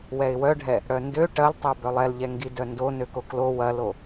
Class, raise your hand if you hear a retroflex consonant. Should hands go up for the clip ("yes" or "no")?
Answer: yes